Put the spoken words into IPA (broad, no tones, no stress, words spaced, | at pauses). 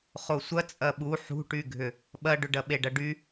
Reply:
χosʷɐ t͡sʼɐɓu ħṳʈyɡʱʏ | ɓɐɖʏɖɐ ɓeɖɐɖy